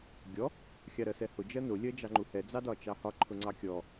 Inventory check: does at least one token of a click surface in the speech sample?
yes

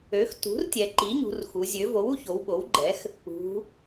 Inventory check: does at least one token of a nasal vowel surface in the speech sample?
no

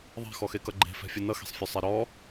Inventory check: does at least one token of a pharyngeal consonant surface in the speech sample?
no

